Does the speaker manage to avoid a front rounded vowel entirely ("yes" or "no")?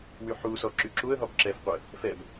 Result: no